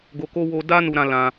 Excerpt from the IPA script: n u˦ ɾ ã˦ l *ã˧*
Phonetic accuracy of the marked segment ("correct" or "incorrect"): correct